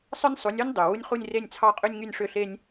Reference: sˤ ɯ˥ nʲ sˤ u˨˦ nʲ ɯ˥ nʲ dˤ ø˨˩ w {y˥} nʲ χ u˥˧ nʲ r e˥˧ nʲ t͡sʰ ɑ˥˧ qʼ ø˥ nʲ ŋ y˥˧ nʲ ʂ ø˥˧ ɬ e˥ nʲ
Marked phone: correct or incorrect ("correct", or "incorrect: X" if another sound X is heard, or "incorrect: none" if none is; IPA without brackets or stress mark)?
incorrect: u˥